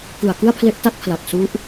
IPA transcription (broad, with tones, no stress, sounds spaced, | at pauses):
k ɯ˨˩ a̯ k ɯ˥˩ a̯ pʰ l e˦˥ ʔ t a˦˥ t̚ pʰ l a˨˩ k̚ s u˦˥ ʔ